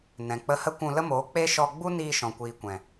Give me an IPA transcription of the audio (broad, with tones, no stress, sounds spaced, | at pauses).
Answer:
n ɛ̃˨ k͡p ə˧ h ə˦ kʷ ũ˧ l ə˦ m oː˨˦ k͡p e˦ ʃ ɔ˧ ɡ͡b u˦ n iː˧ ʃ ɔ̃˨ kʷ iː˨ kʷ ɛ̃˨